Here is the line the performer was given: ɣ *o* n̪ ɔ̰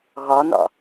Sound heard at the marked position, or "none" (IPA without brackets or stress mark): ɔ